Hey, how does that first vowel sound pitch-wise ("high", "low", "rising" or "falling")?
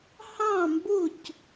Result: falling